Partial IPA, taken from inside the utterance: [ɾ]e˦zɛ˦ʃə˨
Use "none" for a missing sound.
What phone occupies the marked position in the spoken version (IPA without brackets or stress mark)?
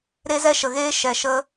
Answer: ɾ